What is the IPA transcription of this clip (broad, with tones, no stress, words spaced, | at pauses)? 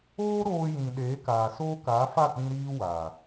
oː˦ ɾoː˧jĩ˨ ɗeː˨˦kaː˨soː˦ kaː˨˦fa˦˨k͡pĩ˧ ɾiː˦ waː˨